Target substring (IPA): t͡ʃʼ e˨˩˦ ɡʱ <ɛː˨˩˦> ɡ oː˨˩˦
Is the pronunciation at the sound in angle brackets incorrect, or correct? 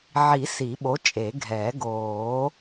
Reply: correct